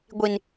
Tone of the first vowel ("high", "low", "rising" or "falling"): high